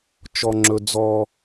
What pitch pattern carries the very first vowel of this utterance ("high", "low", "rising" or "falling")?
high